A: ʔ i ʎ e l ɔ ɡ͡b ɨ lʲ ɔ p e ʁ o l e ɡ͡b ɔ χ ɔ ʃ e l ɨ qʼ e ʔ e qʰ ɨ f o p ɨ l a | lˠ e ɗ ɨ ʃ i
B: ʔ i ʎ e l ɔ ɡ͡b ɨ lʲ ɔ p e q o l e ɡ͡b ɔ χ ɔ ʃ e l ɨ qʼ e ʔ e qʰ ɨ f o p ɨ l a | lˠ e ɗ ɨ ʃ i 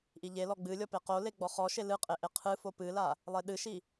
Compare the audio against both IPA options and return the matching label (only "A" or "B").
B